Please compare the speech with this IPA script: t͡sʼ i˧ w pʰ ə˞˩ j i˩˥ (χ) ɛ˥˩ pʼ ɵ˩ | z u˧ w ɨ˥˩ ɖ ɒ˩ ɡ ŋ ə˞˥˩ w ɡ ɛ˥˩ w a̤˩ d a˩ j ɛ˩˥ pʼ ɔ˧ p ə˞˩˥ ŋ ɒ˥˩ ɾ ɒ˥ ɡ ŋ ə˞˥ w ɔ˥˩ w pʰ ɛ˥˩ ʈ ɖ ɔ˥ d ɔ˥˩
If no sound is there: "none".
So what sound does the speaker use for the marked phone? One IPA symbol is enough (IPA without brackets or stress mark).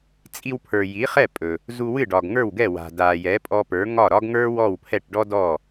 χ